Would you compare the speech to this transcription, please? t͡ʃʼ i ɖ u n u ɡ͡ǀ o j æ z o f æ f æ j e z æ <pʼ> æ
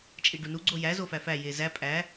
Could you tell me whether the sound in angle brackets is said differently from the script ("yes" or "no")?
no